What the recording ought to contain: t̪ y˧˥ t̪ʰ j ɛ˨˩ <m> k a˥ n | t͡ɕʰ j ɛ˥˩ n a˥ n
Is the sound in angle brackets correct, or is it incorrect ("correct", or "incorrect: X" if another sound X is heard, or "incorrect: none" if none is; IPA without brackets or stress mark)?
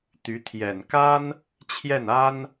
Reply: incorrect: n